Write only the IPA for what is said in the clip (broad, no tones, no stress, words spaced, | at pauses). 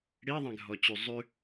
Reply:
ɽiðˤɛ̃ɡʱɔt͡ɕy zˤʉ